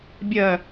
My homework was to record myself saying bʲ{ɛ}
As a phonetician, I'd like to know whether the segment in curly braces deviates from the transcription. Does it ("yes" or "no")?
yes